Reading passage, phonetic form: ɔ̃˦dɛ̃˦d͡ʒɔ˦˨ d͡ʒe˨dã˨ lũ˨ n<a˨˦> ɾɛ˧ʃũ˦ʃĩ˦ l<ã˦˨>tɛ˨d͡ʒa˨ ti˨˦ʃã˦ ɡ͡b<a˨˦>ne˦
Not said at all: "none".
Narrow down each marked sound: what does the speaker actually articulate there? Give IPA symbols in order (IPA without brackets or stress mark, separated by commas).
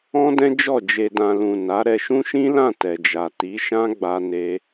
a˨˦, ã˦˨, a˦